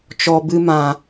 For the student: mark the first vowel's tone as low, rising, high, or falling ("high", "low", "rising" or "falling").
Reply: low